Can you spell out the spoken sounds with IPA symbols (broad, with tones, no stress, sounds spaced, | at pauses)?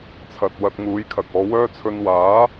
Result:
t͡sʰ ɐ˨ t̚ w ɐ˧ t̚ ŋ uː˨˥ j kʰ ɐ˨ k̚ ɔː˨˧ w œː˥ t͡sʰ ɵ˧ n w aː˨˥